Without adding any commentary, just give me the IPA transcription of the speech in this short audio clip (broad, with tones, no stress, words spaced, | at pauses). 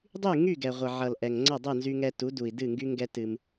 dˤy˦˨ŋy˦˨ ɡɛ˨ʁʷʌ˨ʕʌ˨l ʔɛ˨ŋŋ͡ǀʌ˦˨ dˤɯ˦˨nzy˧ŋɛ˧tu˨˦ du˨i̯dɨ˦˨ŋɡy˦ŋɡɛ˦ tɨ˧m